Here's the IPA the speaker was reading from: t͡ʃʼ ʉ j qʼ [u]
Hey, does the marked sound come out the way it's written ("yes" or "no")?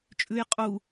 yes